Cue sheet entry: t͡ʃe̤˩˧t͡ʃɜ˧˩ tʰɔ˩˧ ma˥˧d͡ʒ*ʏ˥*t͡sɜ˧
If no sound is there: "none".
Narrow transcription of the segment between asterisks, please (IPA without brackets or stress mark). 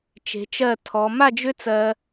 ʏ˥